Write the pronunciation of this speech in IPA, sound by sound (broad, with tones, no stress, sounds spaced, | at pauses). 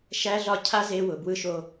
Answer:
ʃ æ˦ ɮ ɒ˦ cʰ a˦ z e˦ w ʊ˨ b w ɯ˦ ʃ o˦